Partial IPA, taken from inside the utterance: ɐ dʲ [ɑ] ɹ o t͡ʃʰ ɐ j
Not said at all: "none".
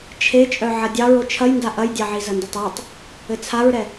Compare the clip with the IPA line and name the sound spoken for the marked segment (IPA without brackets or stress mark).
ɑ